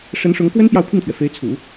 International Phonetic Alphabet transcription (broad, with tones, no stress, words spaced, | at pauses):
ʂə˧˥nʂʊ˧˥ŋkwə˥n pjɑ˥˧ʊ̯pʰi˥˩ŋt̪ʰɥɛ˩ fe˧˥ɪ̯t͡sʰṵ˨˩˦